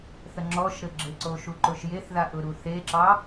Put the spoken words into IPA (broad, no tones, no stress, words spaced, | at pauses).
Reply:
θəŋ͡ǁɔʃɾɘ ɡ͡ǁɘǀoʃuǃʊʃ jeθðaʔʊɾu θeǁɑ